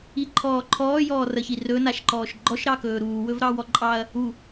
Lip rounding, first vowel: unrounded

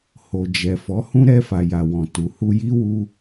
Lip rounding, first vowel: rounded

